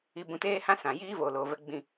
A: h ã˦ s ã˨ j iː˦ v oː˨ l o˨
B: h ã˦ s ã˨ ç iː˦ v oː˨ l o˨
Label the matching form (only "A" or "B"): A